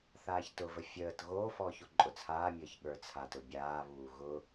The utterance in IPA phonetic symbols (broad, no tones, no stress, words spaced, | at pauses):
θaːçtʊvə fʲəːt ɣoːfɔːç oǃʼʊt͡sʰaːmʲəːç ɠə˞t͡sʰatʊ bʲaːβuː ɣʊ